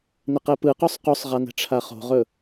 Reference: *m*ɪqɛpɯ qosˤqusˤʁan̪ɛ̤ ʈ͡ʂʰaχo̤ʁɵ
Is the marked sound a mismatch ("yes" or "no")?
yes